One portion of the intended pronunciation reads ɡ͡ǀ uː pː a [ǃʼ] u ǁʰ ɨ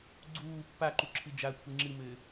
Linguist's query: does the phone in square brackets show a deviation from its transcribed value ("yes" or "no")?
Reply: yes